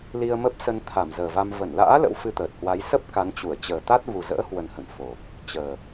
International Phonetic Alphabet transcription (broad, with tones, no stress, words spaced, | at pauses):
li˧ə̯mə˦˥p̚sə˧n t̪ʰa˧˩mzəː˨˩va˧m və˧˩nla̰ː˧˥ lə̰˧˥wfɨ˧t̪əː˨˩t̚hwa˨˦j sə˦˥p̚ ka˨˦nt͡ɕu˧˩ə̯ t͡ɕəː˨˩t̪a˦˥t̚ vu˨˩zə̰ː˧˥hwə˨˩nhə̰˧˨n fo˨˩ | t͡ɕəː˨˩